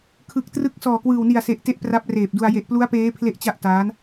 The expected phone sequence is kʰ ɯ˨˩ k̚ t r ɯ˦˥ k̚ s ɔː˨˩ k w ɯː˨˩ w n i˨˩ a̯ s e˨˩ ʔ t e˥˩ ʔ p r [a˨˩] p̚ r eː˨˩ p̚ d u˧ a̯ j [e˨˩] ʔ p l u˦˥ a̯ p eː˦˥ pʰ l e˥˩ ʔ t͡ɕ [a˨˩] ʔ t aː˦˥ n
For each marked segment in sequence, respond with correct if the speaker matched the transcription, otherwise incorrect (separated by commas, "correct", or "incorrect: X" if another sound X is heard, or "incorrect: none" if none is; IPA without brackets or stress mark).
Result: incorrect: a˦˥, correct, incorrect: a˥˩